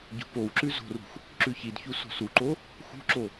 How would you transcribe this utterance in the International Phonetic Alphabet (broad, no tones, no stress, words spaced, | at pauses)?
ɟo̤powǁʉ zo̤rṳx | ǁʉçidçu so̤suǃo | xṳǁo